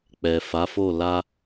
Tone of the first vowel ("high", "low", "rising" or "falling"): low